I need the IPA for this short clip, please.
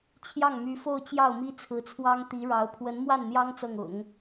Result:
t͡ɕʰjɑ˥˩ŋmy˧˥fo˥˧ʊ̯ t͡ɕjɑ˥˩ʊ̯mi˥t͡sʰɹ̩˧˥t͡sʰwɑ˥ŋ t̪i˧˥ɻɑ˧˥ʊ̯ pʰwə˧˥nmwa˥˩nn̪jɑ˥ŋ t͡sɤ˥˩ŋʊ̰˨˩˦ŋ

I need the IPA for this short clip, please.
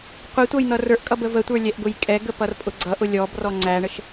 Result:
qʷitʷʌj n̪ʌrə˞ʔkʼʌb əvətʷə˞ lʲɛʔɡʊjkʼɛɡə pʌrpʼʊɡ͡ǀʌʔʊ lʲɔb rɔŋ͡ǀæɳəʃ

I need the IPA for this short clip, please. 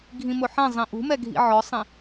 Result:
ɡʱĩmʊħɛ̃ zˤĩʔṳ mɛɡʱḭʕɔsˤĩ

